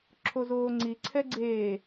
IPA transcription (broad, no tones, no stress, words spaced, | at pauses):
ǁʰozoːŋ͡ǀi ǀʰɛɡ͡ǀeː